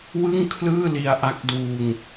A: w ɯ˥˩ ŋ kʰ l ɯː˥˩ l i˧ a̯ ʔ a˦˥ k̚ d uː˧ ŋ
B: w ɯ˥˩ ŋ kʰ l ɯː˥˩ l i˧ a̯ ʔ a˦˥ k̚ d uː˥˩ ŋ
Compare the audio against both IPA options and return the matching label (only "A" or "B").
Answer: A